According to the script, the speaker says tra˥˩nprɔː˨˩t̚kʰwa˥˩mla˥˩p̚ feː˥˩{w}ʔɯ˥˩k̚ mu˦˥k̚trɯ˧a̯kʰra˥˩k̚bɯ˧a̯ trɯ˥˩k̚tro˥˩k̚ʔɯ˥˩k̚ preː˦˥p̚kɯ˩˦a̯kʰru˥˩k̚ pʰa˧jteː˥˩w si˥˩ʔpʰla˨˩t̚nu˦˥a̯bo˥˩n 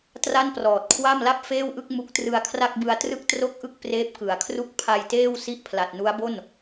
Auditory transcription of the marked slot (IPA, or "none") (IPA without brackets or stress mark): w